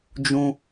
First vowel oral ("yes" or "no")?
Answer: no